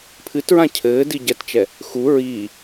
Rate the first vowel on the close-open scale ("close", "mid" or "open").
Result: close